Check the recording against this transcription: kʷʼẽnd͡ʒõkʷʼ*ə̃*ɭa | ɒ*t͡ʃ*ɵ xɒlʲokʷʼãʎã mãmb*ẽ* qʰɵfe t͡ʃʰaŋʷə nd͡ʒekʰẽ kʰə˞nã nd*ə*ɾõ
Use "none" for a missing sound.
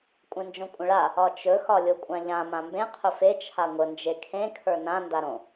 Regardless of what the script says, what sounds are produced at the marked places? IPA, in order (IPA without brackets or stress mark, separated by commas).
ə̃, t͡ʃ, ẽ, a